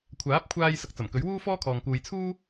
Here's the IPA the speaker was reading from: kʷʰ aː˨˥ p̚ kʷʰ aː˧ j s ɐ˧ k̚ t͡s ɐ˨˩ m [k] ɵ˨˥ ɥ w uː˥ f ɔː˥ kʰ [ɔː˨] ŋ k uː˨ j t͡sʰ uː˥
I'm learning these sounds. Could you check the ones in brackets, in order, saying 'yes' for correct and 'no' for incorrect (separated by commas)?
yes, yes